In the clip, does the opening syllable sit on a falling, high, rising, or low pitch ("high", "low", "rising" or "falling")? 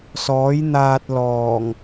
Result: rising